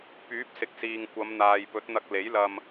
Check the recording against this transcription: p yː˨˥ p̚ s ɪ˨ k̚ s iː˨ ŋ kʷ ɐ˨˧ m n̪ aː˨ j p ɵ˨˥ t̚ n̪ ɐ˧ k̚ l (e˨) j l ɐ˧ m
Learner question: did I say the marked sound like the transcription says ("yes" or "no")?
no